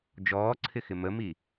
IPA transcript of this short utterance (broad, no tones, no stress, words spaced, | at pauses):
d͡ʒɔːǀʰɪxɪ məmi